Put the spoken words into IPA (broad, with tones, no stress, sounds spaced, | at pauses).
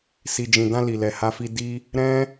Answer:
s i˨ d͡ʒ ĩ˨ d ã˧ l i˨ l ɛ˨ h a˧ f i˧ d i˦ | ɾ ɛ̃˦